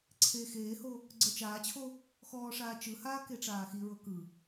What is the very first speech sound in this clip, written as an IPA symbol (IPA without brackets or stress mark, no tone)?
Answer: ǀʰ